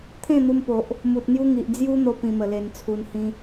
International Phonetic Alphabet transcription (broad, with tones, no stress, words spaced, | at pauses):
t̪ʰẽ˥˧n̪u˧mpo˨ʔ | mu˨t̚n̪ju˦ŋi˨ʔ d͡zju˦n̪o˧ pĩ˧mə˨˩le˧nt͡sʰu˧n hĩ˦